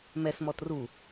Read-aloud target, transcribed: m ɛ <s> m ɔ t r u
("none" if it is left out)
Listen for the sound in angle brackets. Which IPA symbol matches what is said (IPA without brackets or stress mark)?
s